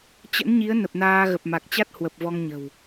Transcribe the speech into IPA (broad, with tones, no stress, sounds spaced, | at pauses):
t͡ɕ ə̰˧˥ n ɲ i˨˦ ə̯ n ə˨˩ p̚ n aː˧ ɣ ə˨˩ p̚ m a˨˩ k̚ t͡ɕ a˦˥ t̚ h w ə˨˩ p̚ v ɔ˧ ŋ ɲ ə̤˨˩ w